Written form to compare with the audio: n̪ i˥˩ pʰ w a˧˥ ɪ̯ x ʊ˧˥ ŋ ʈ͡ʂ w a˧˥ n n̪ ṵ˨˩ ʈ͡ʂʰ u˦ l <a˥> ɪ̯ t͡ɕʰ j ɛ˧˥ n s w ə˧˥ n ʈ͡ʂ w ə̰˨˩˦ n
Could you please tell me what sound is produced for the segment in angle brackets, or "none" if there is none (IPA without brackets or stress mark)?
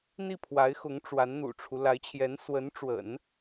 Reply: a˧˥